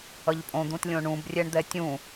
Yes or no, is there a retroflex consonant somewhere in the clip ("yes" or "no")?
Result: yes